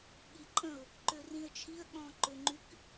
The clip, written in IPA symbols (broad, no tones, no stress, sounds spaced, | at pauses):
ɠ i ǃʼ ə̃ ʊ̯ | ǃ ø r ĩ ə̯ t͡ʃʰ i ə̯ ɠ ɔ̃ ǃ ø ŋ͡ǃ y k